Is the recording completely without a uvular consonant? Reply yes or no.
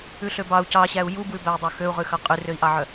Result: no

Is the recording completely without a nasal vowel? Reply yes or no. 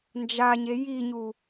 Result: yes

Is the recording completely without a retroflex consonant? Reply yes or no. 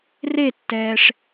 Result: no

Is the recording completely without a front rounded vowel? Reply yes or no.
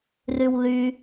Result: no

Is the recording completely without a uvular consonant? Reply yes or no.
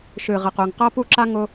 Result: no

